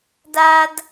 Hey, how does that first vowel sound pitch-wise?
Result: high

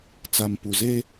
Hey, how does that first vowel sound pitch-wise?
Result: low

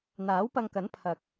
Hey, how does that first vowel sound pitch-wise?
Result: rising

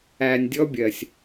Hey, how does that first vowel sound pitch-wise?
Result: low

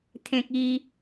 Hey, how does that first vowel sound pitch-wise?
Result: high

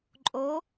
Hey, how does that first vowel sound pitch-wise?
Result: rising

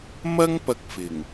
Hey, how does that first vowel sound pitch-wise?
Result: high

